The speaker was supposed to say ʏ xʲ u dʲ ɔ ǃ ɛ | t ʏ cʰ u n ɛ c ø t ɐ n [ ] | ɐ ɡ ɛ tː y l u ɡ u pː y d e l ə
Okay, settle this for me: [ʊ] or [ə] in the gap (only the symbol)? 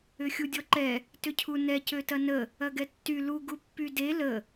ə